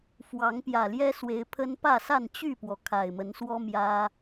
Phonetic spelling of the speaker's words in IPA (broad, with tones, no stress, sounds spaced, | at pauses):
f w ɑ˨˦ ŋ p j ä˨˩ l j ɛ˦ s w e˨˦ ɪ̯ pʰ ə˦ n p ä˥˨ s a˥˨ n t͡ɕ y˥˨ p w ɔ˩ kʰ a˨˩ ɪ̯ m ə˨˦ n s w ɔ˦ m j ä˦